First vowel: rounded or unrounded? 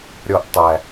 rounded